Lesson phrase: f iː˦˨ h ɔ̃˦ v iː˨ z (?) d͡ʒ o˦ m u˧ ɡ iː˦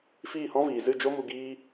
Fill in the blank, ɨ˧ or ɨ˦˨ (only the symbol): ɨ˦˨